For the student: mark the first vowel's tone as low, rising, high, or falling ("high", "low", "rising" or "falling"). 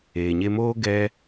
low